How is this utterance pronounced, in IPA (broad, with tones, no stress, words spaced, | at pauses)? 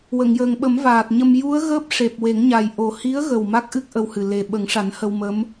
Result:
wə˨˩˨ŋjəː˨˩ŋɓə˨˩˦mvaː˨˩t̚ ɲə˧m ju˧˥ə̯ ɣəː˦˥p̚ʂe˨˩p̚we˨˩˦ŋɲa˨˩j ʔo˨˩hi˧˥ə̯ɣə˨˩w ma˦˥k̚ʔɨ˦˥k̚ ʔə˧whɨ˨˩ le˨˩ɓə˨˩˦ŋʂa˨˩˦n hə˧wmə˧˥m